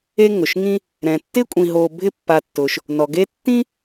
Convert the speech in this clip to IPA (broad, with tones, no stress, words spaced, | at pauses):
e˦ŋʊ˩ʃŋĩ˦ | ɾɛ̃˩tːɪ˥ kʷʼĩ˨ɦo˨ bʱɪ˦pːa˨tːʊ˩ʃ | nɔ˩ɡe˦tːĩ˥